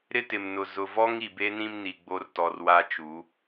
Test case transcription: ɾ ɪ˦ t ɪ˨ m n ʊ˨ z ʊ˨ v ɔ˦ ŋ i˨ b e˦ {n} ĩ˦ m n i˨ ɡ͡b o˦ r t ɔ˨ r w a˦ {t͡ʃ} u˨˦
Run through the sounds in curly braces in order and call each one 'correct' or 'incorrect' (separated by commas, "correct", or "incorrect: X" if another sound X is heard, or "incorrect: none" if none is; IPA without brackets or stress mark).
correct, correct